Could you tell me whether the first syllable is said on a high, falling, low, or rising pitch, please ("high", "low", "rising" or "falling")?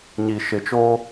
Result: low